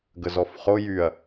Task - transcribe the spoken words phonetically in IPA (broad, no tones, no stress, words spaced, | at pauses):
ɡəzɔfχo jyɐ̯